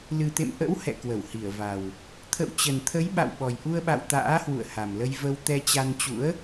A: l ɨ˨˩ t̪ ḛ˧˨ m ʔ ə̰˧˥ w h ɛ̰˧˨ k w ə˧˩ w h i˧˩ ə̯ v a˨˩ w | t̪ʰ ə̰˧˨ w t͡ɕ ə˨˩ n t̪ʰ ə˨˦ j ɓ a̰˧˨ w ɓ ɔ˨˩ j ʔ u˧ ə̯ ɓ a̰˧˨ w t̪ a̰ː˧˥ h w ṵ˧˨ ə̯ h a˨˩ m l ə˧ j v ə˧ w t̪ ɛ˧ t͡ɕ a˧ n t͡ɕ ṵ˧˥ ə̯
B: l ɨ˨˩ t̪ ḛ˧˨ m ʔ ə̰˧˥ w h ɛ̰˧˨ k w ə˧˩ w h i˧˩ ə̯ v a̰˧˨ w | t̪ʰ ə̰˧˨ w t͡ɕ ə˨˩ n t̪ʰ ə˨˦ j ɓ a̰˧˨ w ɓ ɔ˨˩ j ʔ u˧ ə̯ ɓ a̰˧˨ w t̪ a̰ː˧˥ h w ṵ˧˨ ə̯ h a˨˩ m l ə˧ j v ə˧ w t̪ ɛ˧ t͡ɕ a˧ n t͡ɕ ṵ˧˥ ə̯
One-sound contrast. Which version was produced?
A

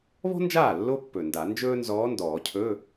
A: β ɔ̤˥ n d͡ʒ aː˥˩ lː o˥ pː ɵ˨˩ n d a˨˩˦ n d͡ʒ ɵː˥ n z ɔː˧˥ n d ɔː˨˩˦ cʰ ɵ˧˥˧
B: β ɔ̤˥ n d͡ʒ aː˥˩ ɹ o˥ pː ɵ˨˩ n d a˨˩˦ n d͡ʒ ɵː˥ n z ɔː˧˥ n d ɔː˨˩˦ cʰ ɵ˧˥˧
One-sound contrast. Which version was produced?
A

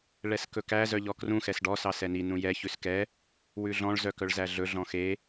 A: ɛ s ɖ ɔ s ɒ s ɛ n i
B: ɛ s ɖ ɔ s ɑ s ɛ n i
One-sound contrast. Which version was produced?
B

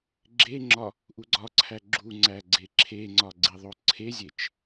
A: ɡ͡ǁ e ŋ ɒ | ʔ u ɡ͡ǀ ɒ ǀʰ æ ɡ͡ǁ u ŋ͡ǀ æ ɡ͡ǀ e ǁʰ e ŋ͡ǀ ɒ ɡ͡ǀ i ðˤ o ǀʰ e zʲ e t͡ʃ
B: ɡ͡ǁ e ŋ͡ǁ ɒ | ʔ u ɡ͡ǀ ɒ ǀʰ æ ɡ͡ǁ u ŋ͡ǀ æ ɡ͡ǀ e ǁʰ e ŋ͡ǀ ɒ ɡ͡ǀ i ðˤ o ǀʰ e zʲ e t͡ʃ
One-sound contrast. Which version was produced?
B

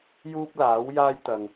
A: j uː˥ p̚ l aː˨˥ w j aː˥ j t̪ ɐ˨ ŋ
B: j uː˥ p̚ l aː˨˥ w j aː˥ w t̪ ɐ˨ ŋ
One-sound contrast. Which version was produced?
A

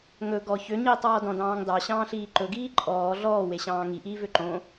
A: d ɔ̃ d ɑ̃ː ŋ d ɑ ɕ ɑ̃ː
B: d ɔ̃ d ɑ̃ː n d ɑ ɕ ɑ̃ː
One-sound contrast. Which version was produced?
A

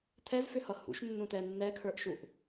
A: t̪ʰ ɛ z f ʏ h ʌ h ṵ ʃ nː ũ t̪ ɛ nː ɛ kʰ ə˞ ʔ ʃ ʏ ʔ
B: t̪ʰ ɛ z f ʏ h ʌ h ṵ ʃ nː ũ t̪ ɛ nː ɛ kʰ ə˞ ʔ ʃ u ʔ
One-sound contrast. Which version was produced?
B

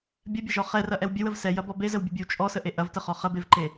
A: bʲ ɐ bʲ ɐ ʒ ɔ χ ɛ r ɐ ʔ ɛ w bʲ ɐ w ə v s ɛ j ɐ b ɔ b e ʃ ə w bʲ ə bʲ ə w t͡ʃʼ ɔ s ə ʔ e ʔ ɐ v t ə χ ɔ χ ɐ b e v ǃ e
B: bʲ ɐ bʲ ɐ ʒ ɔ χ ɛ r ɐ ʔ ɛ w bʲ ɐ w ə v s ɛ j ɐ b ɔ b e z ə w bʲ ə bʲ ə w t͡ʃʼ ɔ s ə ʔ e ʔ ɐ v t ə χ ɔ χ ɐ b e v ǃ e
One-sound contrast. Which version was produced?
B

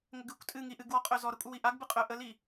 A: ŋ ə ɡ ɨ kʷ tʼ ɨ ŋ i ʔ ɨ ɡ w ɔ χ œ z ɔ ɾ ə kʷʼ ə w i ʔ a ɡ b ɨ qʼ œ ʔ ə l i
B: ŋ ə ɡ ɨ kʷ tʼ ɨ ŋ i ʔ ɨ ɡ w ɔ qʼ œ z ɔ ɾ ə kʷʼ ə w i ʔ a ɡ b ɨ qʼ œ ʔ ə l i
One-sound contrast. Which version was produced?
B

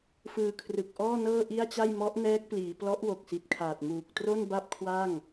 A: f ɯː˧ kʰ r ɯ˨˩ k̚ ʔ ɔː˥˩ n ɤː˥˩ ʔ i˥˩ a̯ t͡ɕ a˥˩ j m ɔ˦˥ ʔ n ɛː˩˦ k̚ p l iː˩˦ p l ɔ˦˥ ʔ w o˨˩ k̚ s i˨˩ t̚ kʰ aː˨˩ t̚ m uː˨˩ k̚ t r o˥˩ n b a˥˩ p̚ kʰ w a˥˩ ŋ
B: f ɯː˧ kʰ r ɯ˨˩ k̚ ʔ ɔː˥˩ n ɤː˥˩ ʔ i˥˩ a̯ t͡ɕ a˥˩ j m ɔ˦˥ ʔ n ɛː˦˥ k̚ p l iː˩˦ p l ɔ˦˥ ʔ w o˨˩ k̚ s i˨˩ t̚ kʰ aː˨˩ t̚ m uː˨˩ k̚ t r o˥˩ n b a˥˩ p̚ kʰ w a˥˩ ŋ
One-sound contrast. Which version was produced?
B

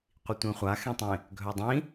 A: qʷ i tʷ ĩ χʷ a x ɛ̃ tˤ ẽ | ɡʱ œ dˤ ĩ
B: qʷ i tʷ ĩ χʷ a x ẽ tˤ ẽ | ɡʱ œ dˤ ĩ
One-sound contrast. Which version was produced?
B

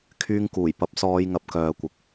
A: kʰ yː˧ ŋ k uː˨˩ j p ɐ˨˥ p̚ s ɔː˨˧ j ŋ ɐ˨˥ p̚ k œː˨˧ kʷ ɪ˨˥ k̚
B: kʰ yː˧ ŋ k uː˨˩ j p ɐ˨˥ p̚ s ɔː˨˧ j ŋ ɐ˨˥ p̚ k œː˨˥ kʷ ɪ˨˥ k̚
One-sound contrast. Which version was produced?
A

